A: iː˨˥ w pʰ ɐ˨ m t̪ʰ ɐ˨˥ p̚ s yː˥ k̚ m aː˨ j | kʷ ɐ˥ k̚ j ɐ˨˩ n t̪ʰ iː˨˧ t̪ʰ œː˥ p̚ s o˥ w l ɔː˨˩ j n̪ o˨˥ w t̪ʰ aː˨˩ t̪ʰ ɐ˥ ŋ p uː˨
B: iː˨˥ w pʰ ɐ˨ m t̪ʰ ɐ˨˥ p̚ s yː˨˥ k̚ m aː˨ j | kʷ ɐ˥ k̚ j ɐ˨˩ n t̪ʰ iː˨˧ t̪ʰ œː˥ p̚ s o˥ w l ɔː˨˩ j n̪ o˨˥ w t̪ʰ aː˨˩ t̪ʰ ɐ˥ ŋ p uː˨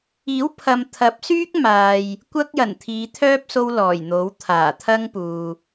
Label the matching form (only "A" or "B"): A